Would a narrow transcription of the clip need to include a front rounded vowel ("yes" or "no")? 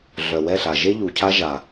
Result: yes